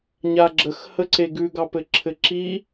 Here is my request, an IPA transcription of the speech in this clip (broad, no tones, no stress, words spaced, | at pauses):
ɲaɡ͡ǁəx həǀeɡʉ ɡɑpɘǁʰɘǁi